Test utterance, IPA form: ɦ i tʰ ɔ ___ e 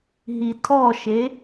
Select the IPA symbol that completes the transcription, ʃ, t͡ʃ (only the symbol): ʃ